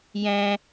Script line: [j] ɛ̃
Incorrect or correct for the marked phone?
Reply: correct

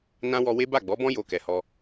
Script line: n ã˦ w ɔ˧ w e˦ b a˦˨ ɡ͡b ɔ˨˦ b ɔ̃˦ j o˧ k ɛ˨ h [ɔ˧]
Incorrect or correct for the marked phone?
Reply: correct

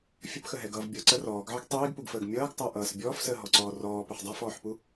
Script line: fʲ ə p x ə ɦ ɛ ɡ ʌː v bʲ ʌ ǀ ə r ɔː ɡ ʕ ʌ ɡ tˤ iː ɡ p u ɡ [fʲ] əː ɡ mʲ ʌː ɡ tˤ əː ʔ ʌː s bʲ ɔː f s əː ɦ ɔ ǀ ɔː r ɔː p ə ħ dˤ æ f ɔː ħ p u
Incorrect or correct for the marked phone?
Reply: incorrect: f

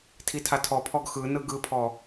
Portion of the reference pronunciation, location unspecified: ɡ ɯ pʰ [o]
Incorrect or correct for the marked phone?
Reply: incorrect: ɔ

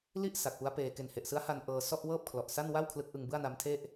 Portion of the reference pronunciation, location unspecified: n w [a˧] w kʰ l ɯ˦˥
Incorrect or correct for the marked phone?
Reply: incorrect: a˥˩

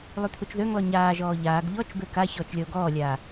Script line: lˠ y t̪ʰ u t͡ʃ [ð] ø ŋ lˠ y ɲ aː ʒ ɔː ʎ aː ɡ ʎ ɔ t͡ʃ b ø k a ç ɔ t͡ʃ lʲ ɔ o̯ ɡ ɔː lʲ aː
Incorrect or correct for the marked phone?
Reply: correct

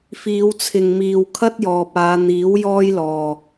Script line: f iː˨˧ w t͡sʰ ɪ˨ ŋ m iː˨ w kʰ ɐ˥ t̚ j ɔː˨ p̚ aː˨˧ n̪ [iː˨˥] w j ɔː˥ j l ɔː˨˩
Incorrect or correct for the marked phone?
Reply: correct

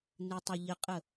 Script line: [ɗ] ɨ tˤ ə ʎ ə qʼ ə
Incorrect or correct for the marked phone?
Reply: incorrect: n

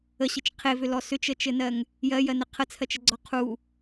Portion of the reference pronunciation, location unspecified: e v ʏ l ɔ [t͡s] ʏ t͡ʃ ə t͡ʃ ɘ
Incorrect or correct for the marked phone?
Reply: incorrect: s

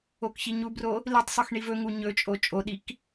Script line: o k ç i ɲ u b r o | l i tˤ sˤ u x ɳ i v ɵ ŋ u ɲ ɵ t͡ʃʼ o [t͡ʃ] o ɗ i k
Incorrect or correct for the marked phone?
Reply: incorrect: t͡ʃʼ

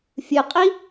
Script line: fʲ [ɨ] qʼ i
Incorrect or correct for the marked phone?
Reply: correct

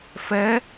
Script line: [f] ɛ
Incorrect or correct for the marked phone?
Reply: correct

